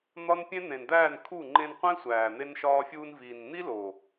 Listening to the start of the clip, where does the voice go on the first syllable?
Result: high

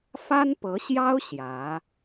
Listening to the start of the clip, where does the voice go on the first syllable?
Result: high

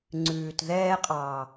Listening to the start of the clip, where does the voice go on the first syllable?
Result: low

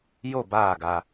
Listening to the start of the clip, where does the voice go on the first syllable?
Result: falling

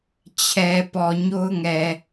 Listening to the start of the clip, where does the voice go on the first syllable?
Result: low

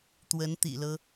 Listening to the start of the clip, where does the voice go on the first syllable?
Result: rising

